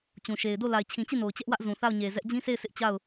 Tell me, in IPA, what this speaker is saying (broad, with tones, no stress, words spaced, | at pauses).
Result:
t͡ɕũ˨ʃe˨ɪ̯do˦˨ la˨ɪ̯t͡ɕʰĩ˨t͡ɕi˦˨ no˨ʊ̯t͡ɕɛ˦ʔwä˦ʔ zũ˨θa˦˨ʊ̯ɲe˨ zɛ˦ʔ d͡ʑĩ˦sʰe˦˨ɪ̯ sɪ˦ʔ t͡ɕa˦˨ʊ̯